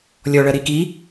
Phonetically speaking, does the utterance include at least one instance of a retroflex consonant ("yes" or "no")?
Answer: yes